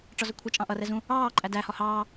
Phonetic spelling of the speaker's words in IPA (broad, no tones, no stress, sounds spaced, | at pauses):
ʈ͡ʂ ɒ z ʊ kʷʰ ʌ t͡ʃʼ ɑ̃ ʔ ʌ r ɛ z ũ | ɑː ǃʼ æ d æ h ɒ h ɑː